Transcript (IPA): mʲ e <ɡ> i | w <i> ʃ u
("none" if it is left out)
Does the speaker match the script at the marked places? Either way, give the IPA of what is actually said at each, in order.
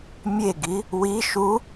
ɡ, i

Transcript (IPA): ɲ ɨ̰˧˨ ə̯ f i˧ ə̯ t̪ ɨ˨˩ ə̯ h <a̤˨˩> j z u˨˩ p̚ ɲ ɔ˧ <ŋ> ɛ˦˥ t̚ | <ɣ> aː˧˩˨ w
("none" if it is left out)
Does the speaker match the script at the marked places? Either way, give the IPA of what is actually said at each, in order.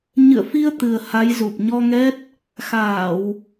a˨˦, ŋ, x

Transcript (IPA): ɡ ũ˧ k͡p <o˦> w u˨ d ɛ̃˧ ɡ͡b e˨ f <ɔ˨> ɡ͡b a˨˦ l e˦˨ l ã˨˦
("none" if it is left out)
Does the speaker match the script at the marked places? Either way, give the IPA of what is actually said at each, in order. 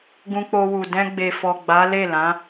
o˧, ɔ˨

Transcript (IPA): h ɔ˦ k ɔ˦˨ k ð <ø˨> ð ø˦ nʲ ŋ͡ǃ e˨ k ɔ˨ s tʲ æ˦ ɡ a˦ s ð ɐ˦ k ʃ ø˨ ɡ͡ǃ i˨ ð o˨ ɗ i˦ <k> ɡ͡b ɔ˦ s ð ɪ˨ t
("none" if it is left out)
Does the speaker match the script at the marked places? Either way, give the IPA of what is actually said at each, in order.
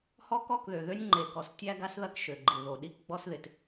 ø˨, k

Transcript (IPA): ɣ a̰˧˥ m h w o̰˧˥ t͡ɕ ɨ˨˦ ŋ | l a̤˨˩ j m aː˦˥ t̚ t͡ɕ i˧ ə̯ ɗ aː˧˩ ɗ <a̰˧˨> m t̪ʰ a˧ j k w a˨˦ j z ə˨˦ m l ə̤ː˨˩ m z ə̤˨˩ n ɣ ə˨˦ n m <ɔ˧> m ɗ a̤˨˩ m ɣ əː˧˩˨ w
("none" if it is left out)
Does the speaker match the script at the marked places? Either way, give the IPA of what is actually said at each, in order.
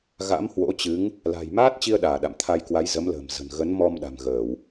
a̰˧˨, ɔ˧

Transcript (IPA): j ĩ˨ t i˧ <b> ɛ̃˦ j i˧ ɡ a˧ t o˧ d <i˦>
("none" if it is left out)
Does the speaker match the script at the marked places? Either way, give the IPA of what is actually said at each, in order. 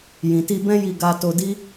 b, i˦

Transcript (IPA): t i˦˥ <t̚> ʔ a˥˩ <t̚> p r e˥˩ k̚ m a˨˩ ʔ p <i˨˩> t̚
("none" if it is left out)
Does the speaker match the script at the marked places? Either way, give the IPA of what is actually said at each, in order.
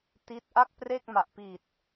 t̚, k̚, i˨˩

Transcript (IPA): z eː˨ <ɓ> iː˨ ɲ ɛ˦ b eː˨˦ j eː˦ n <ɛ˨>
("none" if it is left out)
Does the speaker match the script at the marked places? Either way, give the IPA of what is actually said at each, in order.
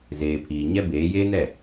pʰ, ɛ˦˨

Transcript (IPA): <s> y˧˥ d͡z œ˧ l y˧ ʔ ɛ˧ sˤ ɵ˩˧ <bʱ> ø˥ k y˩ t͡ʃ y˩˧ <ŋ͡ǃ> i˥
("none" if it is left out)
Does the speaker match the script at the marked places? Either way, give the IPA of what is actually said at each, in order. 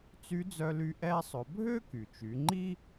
t͡s, bʱ, ŋ͡ǃ

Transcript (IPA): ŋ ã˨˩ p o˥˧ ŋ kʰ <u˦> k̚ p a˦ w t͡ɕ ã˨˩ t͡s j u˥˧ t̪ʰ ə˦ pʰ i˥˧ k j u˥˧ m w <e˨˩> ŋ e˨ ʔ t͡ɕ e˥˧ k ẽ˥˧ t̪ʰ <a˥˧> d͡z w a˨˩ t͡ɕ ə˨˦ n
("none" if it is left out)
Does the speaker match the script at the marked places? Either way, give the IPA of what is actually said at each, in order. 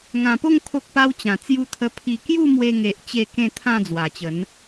o˦, e˧, ã˥˧

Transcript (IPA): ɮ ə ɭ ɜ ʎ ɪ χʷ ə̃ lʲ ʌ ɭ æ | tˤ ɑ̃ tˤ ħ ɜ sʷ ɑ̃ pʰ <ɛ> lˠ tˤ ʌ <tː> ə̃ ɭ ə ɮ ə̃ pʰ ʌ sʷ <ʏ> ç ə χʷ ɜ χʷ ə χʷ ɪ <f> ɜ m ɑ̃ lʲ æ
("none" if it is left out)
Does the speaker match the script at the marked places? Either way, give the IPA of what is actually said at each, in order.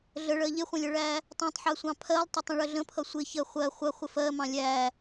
ɜ, tˤ, ɪ, f

